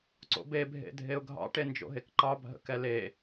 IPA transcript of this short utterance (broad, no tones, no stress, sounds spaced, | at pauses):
ǀ o̰ b e bʱ ḛ dʱ e ʊ̯ ɡʱ ɑ̰ ʈ e n d͡ʒ o̰ ɦ e k ǃ ɑ bʱ ə̰ k ɛ l e